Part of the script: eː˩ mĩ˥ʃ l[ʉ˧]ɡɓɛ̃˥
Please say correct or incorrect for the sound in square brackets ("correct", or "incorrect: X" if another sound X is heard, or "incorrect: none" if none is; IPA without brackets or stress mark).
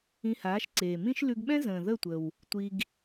correct